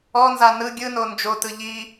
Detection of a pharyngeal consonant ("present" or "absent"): absent